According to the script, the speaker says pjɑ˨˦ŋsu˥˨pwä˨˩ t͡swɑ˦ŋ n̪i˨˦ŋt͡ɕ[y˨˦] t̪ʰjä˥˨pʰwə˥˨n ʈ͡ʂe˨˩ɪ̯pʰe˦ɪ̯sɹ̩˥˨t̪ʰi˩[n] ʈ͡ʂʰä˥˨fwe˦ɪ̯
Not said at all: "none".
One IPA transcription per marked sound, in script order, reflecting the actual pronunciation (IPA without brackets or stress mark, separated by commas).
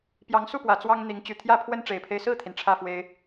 y˨˩, n